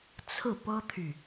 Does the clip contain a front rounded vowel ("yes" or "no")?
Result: yes